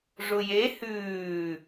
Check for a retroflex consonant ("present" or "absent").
present